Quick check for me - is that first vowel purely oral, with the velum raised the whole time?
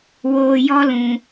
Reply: yes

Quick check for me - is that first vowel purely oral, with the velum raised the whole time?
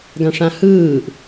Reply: no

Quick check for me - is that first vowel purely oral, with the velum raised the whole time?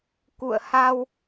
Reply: yes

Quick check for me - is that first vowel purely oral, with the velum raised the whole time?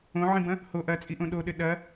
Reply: no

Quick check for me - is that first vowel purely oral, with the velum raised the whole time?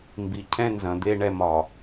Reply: yes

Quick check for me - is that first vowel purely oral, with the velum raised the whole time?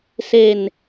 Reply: yes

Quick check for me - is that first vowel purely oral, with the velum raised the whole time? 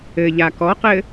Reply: yes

